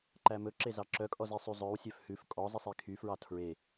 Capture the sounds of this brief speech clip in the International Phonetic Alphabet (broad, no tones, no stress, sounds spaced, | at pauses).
ǃ æ m ɵ ǁ e z ɑ ǁ œ kʼ ɔ z i sˤ y zˤ œ w sʲ œ f h ʉ f kʼ ɔ zˤ i sˤ e kʰ y f ɹ ɑ tʰ ɹ e